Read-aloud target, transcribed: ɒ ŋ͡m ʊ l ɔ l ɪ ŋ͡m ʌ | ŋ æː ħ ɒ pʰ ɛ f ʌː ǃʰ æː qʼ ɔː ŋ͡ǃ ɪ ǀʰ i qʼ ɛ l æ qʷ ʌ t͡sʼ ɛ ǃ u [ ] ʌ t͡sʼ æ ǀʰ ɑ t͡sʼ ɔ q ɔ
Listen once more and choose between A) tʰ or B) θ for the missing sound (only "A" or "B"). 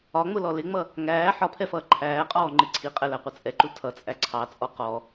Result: A